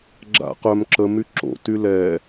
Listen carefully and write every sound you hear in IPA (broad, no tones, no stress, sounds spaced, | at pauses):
ɡ͡ǁ a̰ q œ m ǁ ə m y ǁ o̰ t y l ɛ